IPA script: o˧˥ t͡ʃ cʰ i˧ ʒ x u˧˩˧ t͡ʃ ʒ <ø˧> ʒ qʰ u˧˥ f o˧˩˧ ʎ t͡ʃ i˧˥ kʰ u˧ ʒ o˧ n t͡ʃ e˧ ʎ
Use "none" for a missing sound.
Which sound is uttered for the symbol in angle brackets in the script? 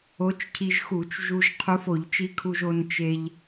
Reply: u˧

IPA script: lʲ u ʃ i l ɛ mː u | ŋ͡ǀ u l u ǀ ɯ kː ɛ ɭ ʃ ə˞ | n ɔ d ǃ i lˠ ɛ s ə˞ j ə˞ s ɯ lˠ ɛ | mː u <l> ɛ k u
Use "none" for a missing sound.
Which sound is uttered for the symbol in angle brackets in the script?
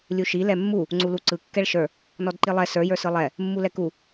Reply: l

